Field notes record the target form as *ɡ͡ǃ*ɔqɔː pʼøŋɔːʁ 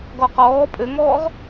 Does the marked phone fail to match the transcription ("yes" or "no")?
yes